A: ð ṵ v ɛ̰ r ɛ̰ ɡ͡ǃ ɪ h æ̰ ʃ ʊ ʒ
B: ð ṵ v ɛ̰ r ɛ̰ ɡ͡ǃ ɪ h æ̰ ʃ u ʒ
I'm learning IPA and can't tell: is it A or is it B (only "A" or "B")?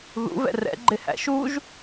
B